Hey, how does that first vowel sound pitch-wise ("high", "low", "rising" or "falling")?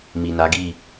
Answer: low